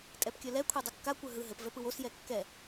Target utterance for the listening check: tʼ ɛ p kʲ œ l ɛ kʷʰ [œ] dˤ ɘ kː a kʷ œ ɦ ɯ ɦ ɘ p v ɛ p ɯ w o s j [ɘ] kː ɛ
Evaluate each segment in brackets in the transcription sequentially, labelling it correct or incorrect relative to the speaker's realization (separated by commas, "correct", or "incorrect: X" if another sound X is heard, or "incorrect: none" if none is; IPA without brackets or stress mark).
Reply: incorrect: ɛ, incorrect: ɛ